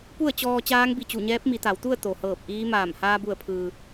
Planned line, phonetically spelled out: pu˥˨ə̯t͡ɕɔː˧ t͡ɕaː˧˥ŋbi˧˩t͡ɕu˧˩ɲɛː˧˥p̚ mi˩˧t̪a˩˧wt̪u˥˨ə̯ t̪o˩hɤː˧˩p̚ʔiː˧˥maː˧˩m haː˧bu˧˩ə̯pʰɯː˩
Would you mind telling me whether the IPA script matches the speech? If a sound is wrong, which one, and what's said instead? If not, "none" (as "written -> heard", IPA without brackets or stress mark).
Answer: none